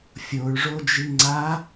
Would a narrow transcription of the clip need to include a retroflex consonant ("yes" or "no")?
yes